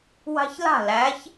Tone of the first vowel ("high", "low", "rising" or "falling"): high